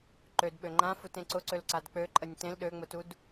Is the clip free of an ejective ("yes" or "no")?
no